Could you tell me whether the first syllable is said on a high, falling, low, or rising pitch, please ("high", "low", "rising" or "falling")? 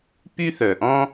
high